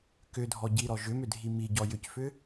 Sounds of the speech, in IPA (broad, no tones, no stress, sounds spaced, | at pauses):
k ʏ dʱ ɔ ɟ i ɾ ɔ ʒ ʏ m ʏ dʱ i m i ɟ ɔ j ʏ c f ʏ